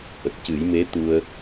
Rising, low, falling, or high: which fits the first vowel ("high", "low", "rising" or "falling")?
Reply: low